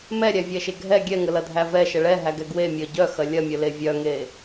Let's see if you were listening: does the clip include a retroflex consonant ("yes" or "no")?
yes